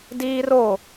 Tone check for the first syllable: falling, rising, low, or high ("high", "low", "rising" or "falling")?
high